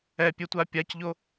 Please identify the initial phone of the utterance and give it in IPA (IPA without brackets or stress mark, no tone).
ɛ